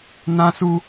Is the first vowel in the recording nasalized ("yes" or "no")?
yes